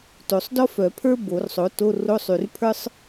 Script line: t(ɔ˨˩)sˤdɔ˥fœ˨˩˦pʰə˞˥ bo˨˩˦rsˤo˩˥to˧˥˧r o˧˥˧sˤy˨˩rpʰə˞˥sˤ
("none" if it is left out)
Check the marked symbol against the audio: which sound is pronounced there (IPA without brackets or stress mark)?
o˨˩